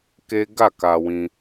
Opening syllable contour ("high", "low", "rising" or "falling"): high